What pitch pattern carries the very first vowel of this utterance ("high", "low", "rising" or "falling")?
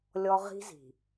high